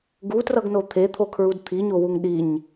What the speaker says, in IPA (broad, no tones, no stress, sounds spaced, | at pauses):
ɡ u t r ʌ ɡ n o t̪ʰ e t̪ʰ o kʰ ɹ u d t̪ʰ i ɲ o w u ŋ ɗ i ɲ